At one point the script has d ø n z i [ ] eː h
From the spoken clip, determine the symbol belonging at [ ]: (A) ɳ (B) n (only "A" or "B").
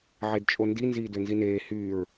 B